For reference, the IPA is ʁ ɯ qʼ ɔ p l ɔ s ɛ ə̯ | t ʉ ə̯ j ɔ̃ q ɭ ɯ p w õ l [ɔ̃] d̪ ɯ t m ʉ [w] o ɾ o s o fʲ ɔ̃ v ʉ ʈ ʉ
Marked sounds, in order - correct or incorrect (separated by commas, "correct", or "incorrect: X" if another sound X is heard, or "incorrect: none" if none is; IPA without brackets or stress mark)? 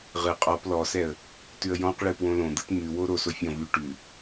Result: incorrect: õ, correct